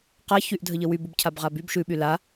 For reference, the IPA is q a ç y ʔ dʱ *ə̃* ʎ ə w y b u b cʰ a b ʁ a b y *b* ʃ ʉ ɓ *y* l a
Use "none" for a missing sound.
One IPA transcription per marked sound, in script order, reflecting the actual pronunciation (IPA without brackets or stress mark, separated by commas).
ə, b, y